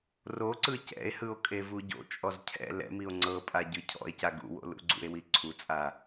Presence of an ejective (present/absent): present